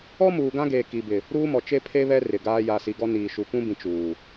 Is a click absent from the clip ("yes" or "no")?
yes